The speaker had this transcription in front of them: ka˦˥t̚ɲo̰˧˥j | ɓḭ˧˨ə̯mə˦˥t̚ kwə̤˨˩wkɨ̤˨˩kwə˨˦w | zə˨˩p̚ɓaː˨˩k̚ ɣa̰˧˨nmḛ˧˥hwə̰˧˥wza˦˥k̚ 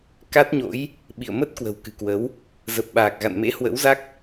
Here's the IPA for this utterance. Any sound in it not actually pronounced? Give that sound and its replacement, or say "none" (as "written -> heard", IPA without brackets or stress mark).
none